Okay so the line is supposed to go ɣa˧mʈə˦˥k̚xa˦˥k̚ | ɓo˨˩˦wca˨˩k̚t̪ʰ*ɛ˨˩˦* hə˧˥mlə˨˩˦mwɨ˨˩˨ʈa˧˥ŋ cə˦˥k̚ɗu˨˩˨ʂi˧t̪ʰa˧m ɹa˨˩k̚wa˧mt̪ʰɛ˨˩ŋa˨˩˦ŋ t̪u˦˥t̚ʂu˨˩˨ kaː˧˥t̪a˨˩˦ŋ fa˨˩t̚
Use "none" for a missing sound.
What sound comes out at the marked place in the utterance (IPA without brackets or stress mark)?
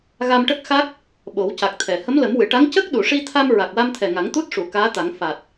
ɛ˨˩˨